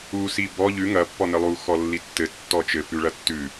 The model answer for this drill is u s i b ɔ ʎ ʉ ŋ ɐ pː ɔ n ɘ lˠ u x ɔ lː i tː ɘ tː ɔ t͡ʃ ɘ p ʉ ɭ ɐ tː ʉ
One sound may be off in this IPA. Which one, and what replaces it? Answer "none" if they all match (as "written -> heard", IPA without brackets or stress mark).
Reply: none